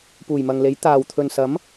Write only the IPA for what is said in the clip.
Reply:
puː˨˩jmɐ˨ŋle˨˥j t̪aː˨w t̪ʰɵ˨nsɐ˨˥m

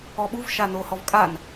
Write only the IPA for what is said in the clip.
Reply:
ɔɓuv ʃanohɔvkʼan

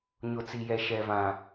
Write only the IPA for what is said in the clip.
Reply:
ɲʊ˨t͡si˨jɛ˨ ʃɛ˨vã˨

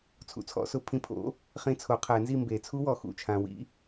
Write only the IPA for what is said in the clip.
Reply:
t͡sʰṵ˨˩˦t͡sʰɔ̰˨˥ sʊ˨˩˦pʰĩ˨˥pʰo̰˨˥ | χĩ˧˥˧t͡sʰo˨˩˦qʰɛ˨˩˦nzi˥˨ mbe˨˩˦t͡sʰu˦˥wɔ˨ xṵ˥˨ t͡ʃʰã˨wḭ˦˥

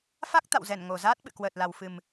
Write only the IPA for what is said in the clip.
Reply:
fa˦˥k̚ t̪a̰˧˨wzɛ˧˩n ŋo˨˩zaː˦˥t̚ɓɨ̰˧˨ kwəː˨˩t̚la˨˩wfɨ˨˩m

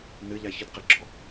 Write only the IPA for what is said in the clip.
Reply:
nɨʎa çɨdqɪɡ͡ǁɔ

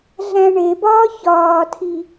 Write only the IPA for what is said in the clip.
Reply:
ɮæ̃ɳebɒː çɒːtʰi

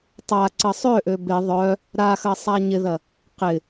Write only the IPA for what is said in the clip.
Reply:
tˤa ǀəsˤøʔø bɪ ðˤœ | ɾaxɐ sˤaɲɪðɐ | qɪ

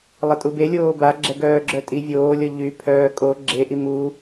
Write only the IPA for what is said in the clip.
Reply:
lˠətʼubelʲoː ba ɡ͡ǁɛɡœːɡ͡ǁœtʼi vʲoːlʲɔ ʎypʰœː kʼo ɡ͡ǁeʔi mu

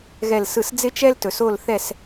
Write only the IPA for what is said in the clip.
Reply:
ɣɛ˥˨lsɯ˥˨s d͡zɪ˥t͡ʃɛ˥ltɵ˩˧s o˥˨lθɛ˥˨s

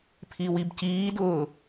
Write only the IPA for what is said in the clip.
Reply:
pʰiwibciːdʊː

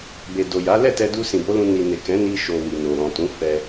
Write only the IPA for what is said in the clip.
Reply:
be˨ do˨ja˨˦ lɛ˦˨tɛ˧du˧ sĩ˨bo˨˦lũ˧ ni˨ne˨ kɛ̃˨˦ni˧ʃo˨ wi˨no˨ɾɔ̃˨tũ˨˦ fɛ˧

